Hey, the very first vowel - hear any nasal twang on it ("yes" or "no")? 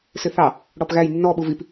no